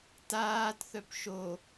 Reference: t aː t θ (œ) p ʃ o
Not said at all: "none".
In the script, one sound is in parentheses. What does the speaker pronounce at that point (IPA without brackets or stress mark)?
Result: œ